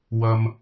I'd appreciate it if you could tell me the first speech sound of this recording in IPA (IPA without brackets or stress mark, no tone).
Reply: w